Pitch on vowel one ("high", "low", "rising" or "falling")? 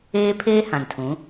high